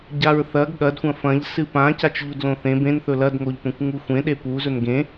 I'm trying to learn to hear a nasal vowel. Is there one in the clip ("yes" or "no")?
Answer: yes